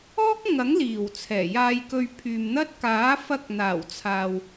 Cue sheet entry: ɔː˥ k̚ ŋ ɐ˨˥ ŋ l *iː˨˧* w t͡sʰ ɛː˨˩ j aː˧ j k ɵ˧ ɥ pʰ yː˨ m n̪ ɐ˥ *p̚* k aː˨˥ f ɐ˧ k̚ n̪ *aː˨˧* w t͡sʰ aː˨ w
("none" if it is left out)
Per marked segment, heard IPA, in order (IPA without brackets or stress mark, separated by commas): iː˨˩, t̚, aː˨˩